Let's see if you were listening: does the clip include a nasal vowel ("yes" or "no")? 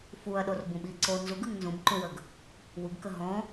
yes